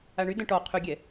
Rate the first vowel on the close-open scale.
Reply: open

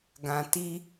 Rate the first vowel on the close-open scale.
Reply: open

